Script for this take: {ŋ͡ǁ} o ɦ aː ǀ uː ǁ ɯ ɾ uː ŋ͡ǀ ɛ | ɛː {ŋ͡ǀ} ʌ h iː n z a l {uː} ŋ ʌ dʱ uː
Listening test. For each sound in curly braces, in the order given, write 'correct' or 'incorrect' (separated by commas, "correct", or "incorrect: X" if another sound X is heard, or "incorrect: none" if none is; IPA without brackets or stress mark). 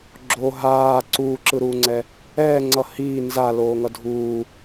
incorrect: ɡ͡ǁ, correct, incorrect: oː